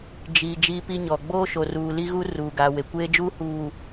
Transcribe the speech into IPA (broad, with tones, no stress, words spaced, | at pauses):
d͡ʒiː˨ d͡ʒiː˦pi˦ɲɔ˨ ɡ͡boː˦ʃo˨ruː˨ li˦ɣu˦ ruː˨ɡa˨we˨ kʷeː˦d͡ʒuː˦huː˨